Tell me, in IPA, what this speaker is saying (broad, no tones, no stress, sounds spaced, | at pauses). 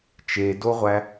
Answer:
t͡ʃ e d o ʁʷ æ